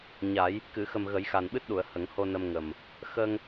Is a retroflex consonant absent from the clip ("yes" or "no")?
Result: yes